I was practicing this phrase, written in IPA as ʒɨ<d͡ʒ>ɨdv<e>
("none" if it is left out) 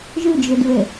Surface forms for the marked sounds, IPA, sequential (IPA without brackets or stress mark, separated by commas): d͡ʒ, e